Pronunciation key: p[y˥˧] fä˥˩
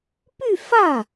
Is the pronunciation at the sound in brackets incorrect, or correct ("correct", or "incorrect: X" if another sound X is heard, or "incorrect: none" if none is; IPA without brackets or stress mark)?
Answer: correct